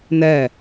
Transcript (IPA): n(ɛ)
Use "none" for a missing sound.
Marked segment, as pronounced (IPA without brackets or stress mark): ɛ